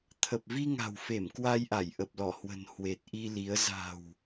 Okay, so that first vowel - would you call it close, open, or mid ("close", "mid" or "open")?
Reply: mid